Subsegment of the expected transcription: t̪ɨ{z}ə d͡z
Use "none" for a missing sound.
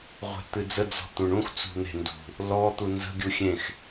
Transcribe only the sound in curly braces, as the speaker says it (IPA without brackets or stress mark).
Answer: d͡z